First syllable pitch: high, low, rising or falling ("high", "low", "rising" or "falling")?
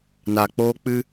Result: low